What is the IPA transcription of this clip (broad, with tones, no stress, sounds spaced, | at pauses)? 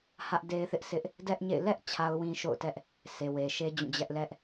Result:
h ä˦ ʔ d e˦ ɪ̯ θ ɪ˦ ʔ s ɪ˦ ʔ | d ɛ˦ ʔ ɲ ḛ˦˨ ɪ̯ l ɛ˦ ʔ t͡ɕʰ a˦ ʊ̯ w ĩ˦ ʃ o̰˦˨ ʊ̯ t ɛ˦ ʔ | sʰ e˨ w e˨ ʃ e˦ d͡ʑ ũ˦˨ d͡ʑ ɛ˦ ʔ l ɛ˦ ʔ